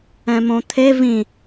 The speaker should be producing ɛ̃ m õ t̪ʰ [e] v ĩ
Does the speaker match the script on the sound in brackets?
yes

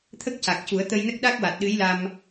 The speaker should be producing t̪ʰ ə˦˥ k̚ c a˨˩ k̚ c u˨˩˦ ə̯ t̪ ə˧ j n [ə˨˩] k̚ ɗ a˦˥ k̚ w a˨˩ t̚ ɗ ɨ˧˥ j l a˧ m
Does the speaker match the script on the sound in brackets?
no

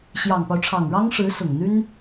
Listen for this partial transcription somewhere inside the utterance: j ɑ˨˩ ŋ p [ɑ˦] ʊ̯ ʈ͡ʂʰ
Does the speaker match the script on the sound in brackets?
yes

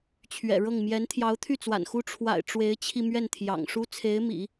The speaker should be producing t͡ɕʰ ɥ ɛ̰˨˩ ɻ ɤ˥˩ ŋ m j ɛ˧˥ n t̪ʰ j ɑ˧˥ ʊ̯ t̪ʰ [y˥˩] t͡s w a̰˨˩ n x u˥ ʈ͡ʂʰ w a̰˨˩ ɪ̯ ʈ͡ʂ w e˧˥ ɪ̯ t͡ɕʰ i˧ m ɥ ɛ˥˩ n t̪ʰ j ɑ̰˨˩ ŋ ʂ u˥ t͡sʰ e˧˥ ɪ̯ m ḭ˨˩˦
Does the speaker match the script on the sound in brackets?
yes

